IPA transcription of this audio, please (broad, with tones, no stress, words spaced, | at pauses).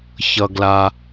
çʌ˩ ɡla˩